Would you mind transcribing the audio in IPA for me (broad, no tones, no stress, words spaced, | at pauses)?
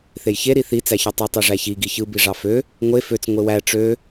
θejçe ɾiθi t͡sæçøtˤo tˤiʐæçi ɡiçɯ biʐɑfø | ŋʷe føt͡s ŋʷewæ ʈ͡ʂø